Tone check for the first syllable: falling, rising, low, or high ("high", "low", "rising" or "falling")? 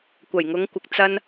low